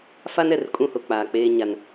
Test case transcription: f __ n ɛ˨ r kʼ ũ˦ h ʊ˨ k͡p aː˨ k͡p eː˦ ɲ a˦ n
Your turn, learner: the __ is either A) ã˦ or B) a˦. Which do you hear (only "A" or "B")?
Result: B